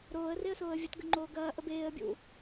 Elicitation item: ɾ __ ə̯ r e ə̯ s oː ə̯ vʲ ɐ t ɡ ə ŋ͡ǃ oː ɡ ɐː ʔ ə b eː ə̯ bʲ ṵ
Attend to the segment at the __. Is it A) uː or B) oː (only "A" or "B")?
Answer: B